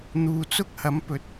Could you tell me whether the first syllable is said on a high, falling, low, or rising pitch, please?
low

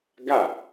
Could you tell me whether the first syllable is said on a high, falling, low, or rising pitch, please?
falling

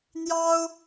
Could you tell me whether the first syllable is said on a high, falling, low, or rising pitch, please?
high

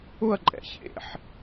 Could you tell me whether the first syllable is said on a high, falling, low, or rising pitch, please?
falling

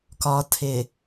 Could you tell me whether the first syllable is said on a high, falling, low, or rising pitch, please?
low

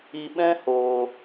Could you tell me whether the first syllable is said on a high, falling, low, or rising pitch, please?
low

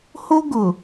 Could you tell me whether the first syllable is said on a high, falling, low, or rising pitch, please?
high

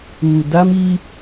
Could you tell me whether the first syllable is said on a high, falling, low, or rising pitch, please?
low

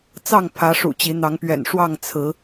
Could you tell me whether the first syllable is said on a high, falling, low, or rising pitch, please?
falling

